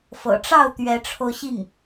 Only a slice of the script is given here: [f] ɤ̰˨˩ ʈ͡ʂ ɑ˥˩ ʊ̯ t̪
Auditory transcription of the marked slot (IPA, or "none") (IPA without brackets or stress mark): f